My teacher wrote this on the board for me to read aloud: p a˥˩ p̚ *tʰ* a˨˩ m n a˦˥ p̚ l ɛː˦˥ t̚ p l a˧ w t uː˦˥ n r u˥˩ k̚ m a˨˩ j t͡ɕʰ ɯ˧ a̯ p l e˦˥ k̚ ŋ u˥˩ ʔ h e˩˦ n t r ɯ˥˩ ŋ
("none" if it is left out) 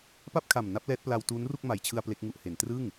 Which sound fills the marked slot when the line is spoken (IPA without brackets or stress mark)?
kʰ